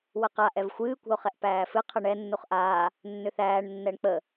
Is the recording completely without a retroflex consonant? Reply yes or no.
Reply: no